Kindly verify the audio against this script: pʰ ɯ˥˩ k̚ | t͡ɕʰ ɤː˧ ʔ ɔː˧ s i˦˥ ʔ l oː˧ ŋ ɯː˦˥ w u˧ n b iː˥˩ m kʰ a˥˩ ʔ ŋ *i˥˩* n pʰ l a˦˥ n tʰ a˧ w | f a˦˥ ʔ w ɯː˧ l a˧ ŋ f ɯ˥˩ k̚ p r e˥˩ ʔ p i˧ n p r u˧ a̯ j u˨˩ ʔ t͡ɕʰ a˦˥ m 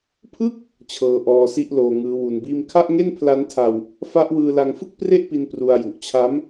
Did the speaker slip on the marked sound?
yes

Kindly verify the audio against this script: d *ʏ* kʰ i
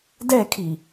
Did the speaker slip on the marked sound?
yes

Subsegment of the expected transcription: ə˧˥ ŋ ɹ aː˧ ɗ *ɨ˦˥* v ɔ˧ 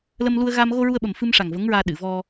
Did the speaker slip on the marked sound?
yes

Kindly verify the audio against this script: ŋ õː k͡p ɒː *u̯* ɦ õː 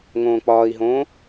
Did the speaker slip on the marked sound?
yes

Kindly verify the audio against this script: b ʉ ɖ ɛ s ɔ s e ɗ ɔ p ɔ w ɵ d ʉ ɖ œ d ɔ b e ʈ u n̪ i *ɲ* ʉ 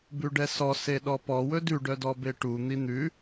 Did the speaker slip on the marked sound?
yes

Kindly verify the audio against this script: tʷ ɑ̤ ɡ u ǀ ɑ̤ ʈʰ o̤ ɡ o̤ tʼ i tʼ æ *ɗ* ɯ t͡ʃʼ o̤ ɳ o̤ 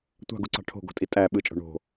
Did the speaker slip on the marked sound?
yes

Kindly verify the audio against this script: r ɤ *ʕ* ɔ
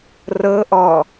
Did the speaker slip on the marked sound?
yes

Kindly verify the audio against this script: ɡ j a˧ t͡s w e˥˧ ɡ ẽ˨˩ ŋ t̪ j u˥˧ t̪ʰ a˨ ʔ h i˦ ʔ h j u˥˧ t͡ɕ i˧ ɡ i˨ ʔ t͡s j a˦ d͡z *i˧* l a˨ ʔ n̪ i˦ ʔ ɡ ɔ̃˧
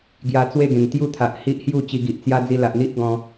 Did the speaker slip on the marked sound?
no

